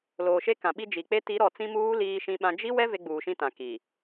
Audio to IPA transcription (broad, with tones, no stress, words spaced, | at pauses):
loː˨ʃe˦kã˨ɓi˦ d͡ʒi˨k͡pe˦ ti˨˦ɾɔ˨ t͡sĩ˦muː˦ liː˦ʃĩ˦ɓã˦ d͡ʒi˦wɛ˦ ve˦ɡ͡buː˨ʃĩ˦tã˨ ki˨